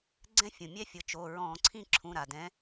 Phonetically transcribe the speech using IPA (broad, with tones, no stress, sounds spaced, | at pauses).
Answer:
ɡ͡ǀ ɛ̃˦ fʲ ũ˩ mʲ ɛ˦ fʲ ɤ˩˧˩ t͡ʃ o˩˧˩ ɹ ɔ̃˧˩˧ ǀʰ ĩ˥˨ ǁʰ ũ˩˧˩ ɾ a˩ d ɛ̃˨˦